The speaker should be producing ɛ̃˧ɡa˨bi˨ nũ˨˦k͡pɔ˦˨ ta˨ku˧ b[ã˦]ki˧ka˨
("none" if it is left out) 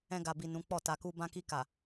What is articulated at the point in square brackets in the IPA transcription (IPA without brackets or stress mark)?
ã˧